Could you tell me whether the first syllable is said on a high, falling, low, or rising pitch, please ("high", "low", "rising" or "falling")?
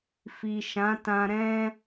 low